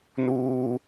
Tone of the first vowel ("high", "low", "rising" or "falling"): high